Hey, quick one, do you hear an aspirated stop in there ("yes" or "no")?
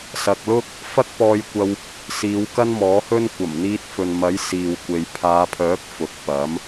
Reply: yes